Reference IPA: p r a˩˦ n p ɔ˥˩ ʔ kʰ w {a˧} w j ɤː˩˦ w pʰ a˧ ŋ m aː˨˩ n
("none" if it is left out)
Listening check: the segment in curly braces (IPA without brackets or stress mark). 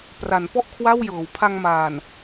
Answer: a˥˩